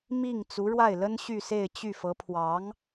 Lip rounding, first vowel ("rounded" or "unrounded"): unrounded